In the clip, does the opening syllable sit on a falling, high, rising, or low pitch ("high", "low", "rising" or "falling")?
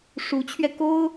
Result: rising